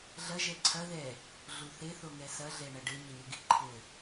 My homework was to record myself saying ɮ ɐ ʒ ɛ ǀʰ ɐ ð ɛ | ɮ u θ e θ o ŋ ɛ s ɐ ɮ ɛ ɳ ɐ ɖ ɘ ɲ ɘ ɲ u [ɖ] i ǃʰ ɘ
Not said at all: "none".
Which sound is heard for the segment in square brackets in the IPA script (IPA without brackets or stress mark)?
ɡ